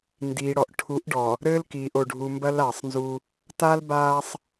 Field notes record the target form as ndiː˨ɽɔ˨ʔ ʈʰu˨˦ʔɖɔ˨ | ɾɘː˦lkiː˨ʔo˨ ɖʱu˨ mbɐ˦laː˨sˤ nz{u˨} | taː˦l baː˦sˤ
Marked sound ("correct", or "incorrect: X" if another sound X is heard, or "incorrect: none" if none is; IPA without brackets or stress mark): incorrect: u˦